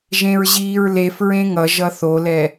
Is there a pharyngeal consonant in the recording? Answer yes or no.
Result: no